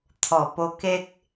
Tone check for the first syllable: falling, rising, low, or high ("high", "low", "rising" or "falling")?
low